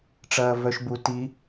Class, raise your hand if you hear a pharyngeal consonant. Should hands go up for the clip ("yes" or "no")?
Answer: no